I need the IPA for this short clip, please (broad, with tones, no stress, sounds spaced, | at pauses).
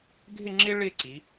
ɡʱ ɪ˥˧ ŋ͡ǁ ɪ˥ ɭ ɪ˥˧ ǀ i˩˧